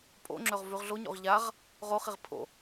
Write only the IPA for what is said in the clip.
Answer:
pʼ o̰ ŋ͡ǁ ɵ ʁ v ʉ ʁ ɮ o ɲ o̰ ʁ ʎ a ʁ | ʁ o χ i ʁ pʰ o̰

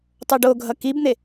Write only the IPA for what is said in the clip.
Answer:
tˤ o ɖ o ɡʱ ʌ k i b n̪ e

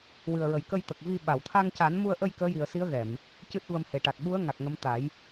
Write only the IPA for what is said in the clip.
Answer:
w ɨ˨˩ ə̯ ɹ ə˨˩ j k ə˧ j t̪ ə˨˩ k̚ v i˧ ɓ a˨˩˨ w t̪ʰ a˧ ŋ c a˨˩˦ n m u˧ ə̯ ʔ ə˧ j k əː˧˥ j i˨˩ ə̯ s i˧˥ ə̯ ɣ ɛ˨˩˨ m | c ɨ˦˥ t̚ v ə˧ m h e˨˩ ʈ a˨˩ t̚ ɓ u˧˥ ə̯ ŋ a˨˩ k̚ ŋ ə˧˥ m t̪ a˨˩˦ j

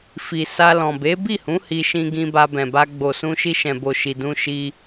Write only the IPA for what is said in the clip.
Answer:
f i˨ s a˧ l ɔ̃˨ b e˨˦ b i˦˨ h ũ˨˦ h i˧ ʃ ĩ˧ ɡ ĩ˧ b a˧ b ɛ̃˨ b a˧ ɡ͡b o˨ s ũ˧ ʃ i˧ ʃ ɛ̃˨ b o˨ ʃ i˨ d ũ˧ ʃ i˧

